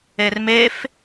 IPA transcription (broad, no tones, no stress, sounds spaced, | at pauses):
e r m e f